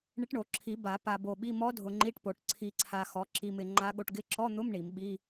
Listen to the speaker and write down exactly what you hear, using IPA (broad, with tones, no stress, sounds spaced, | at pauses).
ɳ ɪ˧˥ ʈ ɳ o˨˩˦ ǁʰ i˨˩˦ b a˨˩˦ p a˧ b o˧ ɓ i˧˥˧ m ɔ˧˥ dʱ ʊ˧ ŋ͡ǃ i˧˥˧ ʈ p o˨˩˦ ʈ ǀʰ i˧ ǀʰ a˧ x ɔ˩˥ ǁ i˧ m ɪ˧ ŋ͡ǃ a˧˥ ɠ o˧ ʈ ɡ ɪ˧˥ ǁ ɔ˧˥˧ n̪ ʊ˧˥˧ m ɳ i˨˩˦ m ɓ i˧˥˧